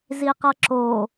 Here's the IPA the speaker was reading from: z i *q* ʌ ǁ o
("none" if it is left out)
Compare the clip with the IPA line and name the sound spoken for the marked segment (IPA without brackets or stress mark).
q